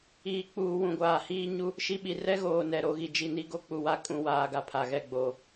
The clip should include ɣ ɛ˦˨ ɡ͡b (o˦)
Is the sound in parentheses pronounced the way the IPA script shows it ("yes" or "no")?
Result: no